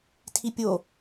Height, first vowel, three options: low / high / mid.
high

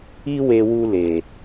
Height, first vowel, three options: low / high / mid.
high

